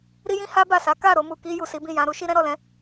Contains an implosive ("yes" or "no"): no